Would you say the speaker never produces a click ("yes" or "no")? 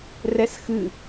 yes